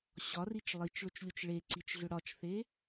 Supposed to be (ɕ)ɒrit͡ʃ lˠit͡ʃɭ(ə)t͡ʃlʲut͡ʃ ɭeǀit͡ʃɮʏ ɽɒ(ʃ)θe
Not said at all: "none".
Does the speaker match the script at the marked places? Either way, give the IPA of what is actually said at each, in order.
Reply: ɕ, ʏ, t͡ʃ

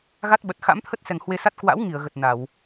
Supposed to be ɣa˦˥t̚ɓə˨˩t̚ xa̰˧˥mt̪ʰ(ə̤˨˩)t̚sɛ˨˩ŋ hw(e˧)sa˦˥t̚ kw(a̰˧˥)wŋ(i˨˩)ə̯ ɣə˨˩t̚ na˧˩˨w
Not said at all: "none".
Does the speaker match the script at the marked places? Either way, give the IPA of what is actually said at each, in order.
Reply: ə˦˥, e˧, a̰˧˥, i˧˩

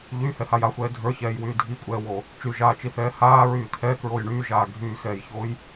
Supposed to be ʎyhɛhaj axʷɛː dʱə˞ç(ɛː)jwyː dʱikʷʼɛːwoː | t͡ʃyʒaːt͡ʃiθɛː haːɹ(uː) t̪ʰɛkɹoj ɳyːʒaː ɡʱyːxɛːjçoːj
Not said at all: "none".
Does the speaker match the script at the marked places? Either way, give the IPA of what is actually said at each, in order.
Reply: ɛː, yː

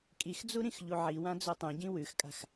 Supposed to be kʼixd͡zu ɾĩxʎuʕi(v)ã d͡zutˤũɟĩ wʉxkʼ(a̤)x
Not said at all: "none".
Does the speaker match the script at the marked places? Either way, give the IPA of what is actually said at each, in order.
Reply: w, a̤

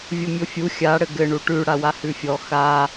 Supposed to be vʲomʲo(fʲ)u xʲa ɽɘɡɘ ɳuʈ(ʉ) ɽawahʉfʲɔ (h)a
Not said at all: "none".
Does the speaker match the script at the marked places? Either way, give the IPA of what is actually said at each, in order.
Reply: fʲ, ʉ, x

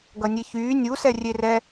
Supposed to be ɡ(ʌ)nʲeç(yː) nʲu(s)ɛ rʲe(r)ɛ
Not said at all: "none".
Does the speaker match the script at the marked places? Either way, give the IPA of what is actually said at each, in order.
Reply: ʌ, yː, s, r

